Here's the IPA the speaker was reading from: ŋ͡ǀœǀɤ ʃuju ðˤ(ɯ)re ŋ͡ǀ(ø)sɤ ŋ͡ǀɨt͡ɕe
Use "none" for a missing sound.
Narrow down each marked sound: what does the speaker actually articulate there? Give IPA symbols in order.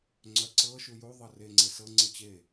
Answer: ɤ, e

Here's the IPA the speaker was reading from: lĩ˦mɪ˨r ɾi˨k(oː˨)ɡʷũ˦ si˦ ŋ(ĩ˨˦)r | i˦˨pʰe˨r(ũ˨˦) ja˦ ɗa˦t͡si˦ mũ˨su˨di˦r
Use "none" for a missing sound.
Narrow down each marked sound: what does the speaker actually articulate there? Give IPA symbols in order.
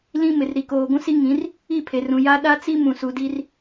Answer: oː˨, ĩ˨˦, ũ˨

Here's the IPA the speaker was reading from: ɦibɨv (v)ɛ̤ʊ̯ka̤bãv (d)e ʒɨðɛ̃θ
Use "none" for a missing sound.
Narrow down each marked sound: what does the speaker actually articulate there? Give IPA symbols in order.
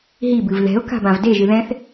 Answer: ð, d

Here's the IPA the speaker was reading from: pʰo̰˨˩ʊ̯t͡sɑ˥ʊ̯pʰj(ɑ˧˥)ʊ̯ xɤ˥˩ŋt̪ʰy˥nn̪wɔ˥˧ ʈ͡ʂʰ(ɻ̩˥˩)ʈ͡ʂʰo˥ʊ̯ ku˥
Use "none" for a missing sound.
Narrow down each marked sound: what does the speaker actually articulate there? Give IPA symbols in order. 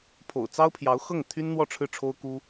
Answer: ɑ˧˥, ɻ̩˥˩

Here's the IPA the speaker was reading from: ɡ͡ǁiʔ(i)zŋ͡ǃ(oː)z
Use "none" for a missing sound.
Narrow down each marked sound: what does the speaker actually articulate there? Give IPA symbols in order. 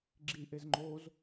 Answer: e, oː

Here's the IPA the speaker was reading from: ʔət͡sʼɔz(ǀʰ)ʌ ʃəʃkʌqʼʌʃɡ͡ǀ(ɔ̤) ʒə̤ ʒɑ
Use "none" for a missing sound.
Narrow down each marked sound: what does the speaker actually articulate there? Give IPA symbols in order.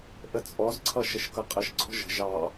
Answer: ǀʰ, ɔ̤

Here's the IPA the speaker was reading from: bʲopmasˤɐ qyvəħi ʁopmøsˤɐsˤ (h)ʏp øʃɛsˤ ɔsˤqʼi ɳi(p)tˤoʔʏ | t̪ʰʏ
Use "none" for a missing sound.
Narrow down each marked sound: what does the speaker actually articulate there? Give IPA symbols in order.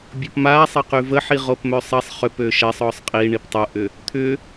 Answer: χ, p

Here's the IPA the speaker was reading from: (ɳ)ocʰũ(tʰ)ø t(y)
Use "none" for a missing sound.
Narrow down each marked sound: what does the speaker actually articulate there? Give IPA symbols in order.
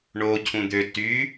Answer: ɳ, d̪, y

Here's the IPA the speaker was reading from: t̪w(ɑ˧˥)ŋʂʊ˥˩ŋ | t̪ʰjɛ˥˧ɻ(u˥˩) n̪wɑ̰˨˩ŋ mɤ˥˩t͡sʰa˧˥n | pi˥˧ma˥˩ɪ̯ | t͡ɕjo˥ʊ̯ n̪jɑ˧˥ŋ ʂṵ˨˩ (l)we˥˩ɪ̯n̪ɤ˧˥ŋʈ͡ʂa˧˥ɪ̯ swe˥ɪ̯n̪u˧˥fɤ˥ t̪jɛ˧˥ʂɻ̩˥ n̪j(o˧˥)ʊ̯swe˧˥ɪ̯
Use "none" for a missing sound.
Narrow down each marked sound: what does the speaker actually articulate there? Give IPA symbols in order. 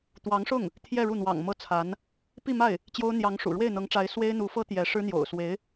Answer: ɑ˧˥, u˥˩, ɻ, o̰˨˩

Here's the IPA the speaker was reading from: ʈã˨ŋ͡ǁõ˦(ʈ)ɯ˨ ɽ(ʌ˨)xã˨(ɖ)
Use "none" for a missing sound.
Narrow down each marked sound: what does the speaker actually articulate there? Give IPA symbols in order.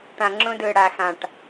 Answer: d, a˨, ʈ

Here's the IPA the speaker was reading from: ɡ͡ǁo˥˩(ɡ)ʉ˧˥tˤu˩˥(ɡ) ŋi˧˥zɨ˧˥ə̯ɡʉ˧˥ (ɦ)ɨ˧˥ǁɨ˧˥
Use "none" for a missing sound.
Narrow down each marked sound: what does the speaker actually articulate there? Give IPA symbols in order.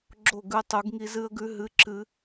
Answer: ɡ, ɡ, ɦ

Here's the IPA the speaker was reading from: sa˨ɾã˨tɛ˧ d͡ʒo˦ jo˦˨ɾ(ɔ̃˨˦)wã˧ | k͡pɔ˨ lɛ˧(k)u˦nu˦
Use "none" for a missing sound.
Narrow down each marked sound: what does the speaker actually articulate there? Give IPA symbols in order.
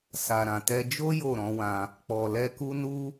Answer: ɔ̃˨˦, k

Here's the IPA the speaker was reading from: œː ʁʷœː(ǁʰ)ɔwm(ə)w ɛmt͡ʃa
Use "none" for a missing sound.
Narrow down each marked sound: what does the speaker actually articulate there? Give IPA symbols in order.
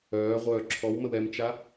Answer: ǁʰ, ə

